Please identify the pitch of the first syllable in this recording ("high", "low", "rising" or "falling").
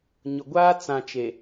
low